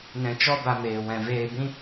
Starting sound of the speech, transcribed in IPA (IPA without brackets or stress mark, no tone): n